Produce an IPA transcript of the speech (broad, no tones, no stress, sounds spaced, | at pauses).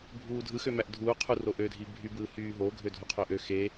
bʱ uː dʱ ɯ x ø m æ ʔ dʱ uː qʰ u r o ʔ ø dʱ i bʱ y b ɯː h yː ɦ o ɡʱ ø dʱ u qʰ ø ʔ ø x e